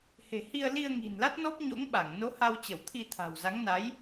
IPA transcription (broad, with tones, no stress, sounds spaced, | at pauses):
h e̤˨˩ h i˧ ə̯ l i˧ ə̯ ŋ i̤˨˩ n l a˦˥ t̚ n ɔ˦˥ p̚ ɲ o̰˧˥ ŋ ɓ a˧˩ ŋ n o˨˦ h a˧ w t͡ɕ ə˧˩ w t̪ʰ i˧ t̪ʰ a̤˨˩ w z a˨˦ ŋ n a˨˦ j